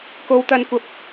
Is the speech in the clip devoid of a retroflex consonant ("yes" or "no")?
yes